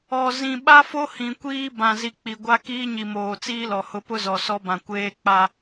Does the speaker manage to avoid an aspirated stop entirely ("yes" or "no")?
yes